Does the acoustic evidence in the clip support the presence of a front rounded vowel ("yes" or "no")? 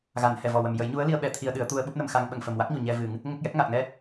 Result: no